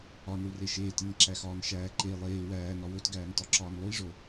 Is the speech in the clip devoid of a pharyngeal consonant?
yes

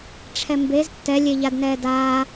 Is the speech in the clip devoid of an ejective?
yes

